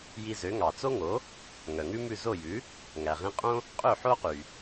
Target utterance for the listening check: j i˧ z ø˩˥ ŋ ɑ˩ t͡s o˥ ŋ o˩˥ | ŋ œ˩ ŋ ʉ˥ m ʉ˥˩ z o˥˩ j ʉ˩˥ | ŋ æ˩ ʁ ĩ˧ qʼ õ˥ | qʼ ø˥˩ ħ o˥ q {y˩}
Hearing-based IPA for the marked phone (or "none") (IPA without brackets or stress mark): y˩